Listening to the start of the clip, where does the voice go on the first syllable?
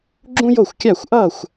high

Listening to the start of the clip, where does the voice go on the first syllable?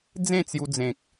falling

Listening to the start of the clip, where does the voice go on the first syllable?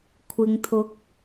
low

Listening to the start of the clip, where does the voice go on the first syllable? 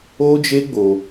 high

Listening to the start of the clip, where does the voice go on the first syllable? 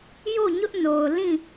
falling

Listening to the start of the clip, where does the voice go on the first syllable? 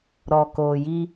low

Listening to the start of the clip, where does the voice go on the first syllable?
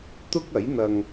high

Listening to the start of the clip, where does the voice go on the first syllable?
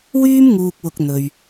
high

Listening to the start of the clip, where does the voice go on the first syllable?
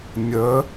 rising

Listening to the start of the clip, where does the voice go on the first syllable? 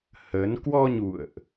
rising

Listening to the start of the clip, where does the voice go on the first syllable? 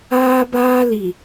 high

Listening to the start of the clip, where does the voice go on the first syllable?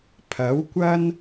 rising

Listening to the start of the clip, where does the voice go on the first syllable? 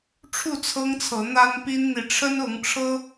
falling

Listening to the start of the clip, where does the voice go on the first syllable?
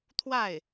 falling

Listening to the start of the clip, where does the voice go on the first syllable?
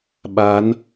rising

